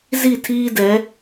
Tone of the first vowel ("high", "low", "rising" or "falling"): falling